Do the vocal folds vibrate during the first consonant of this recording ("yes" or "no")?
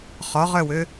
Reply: no